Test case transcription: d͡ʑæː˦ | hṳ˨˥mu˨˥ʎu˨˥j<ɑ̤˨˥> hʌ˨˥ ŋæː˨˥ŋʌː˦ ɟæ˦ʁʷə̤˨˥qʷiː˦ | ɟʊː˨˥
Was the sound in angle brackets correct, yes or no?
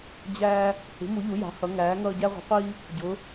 yes